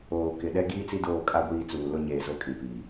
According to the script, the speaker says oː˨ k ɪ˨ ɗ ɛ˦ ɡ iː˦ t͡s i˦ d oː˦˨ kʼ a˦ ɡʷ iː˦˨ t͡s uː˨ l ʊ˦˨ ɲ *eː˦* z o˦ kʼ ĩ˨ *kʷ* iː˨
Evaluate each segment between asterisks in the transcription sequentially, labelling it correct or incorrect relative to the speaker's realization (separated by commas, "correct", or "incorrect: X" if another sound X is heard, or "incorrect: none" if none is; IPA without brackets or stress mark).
incorrect: eː˨, incorrect: p